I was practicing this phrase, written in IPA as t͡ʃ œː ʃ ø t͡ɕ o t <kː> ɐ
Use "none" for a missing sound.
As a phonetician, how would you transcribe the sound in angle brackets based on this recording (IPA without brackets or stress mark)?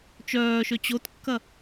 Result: kː